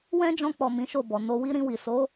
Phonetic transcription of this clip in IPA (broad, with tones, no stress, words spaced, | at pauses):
wɛ̃˦d͡ʒɔ̃˧k͡pɔ˨ mĩ˨˦ʃo˦˨bɔ˨ no˧wi˦ ɾĩ˧wi˨so˨˦